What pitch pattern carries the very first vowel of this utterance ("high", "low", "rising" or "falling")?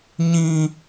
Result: high